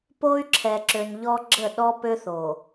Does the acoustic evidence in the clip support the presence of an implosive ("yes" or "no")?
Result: yes